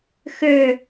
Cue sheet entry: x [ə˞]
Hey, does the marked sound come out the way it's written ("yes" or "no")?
yes